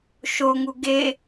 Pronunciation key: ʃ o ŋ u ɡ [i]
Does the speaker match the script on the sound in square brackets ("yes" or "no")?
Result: no